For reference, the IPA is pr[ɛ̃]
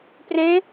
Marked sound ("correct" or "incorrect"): incorrect